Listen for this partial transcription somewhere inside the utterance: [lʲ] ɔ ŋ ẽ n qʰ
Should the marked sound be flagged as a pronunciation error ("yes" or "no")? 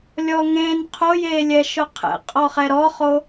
no